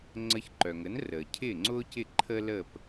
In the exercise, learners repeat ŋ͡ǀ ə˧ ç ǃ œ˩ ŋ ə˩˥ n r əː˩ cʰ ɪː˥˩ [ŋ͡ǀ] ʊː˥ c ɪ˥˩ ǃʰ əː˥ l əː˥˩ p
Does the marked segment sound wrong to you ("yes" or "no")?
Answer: no